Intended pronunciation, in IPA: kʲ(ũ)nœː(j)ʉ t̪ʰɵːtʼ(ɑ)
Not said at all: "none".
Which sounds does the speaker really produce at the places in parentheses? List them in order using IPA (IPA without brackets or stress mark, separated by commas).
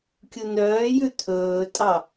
u, j, ɑ